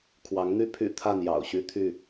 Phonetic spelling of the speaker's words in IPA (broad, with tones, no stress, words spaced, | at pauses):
kʰwɑ˨˦ŋn̪y˦ pʰy̰˨˩ t̪ʰa˥˨n jɑ̰˨˩ʊ̯ ɕy˦t̪ʰy˥˨